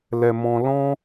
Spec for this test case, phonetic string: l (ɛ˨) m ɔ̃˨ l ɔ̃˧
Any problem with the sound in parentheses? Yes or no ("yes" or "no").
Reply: no